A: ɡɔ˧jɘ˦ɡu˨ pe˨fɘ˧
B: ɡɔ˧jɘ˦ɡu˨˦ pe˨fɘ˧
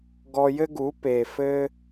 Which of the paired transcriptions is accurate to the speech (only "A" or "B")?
B